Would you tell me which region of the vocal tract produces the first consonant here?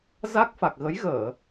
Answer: tongue tip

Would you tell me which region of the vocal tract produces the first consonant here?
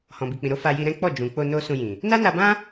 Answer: throat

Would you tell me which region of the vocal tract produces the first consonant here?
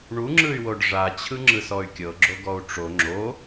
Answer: retroflex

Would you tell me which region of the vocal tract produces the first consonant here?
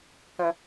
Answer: velum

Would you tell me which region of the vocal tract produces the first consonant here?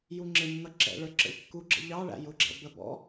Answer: palate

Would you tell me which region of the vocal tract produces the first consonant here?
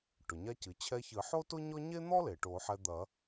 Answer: retroflex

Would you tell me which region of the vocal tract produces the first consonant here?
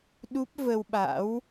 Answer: tongue tip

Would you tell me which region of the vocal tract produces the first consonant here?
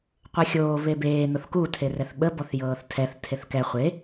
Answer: uvula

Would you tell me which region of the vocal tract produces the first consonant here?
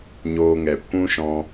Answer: palate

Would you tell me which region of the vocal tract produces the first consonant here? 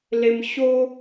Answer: tongue tip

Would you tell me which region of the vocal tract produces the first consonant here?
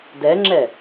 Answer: tongue tip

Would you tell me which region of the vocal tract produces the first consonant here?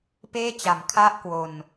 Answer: lips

